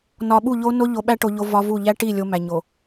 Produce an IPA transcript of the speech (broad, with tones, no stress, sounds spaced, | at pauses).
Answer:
n ɒ˨ ɓ u˦˨ ʎ o˦ n o˦ ʎ o˨ ɓ æ˦ ʈ o˨ ʎ o˦ v ɒ˦ v u˦˨ ʎ æ˦ ʈ i˦˨ lʲ o˦ m æ˨ ɲ o˨